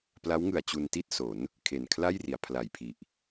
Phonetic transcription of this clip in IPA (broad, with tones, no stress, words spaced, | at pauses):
pla˦˥wŋɯ˨˩a̯ t͡ɕu˧nti˥˩t̚ so˩˦n | kʰe˨˩nkʰla˥˩jri˩˦a̯ pʰla˨˩jpʰi˨˩ʔ